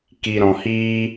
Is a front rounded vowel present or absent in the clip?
absent